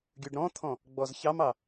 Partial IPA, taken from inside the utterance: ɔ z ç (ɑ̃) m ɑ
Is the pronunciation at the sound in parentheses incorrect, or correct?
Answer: incorrect